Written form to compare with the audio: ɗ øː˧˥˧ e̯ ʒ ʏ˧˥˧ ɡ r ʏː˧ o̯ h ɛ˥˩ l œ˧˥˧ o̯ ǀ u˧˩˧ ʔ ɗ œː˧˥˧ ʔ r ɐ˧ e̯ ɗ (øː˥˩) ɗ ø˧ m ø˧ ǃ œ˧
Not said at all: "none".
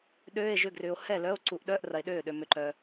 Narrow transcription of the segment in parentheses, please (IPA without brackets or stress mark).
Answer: øː˥˩